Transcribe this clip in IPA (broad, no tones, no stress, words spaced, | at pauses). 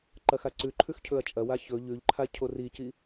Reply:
ǃɐxaǀʉǃʰʉx cʰɵɐ̯t͡ʃʼɐwa çɵ ʎʉʎǃʰa cʰorici